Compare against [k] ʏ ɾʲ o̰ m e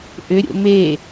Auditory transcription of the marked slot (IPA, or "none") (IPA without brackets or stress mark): ʔ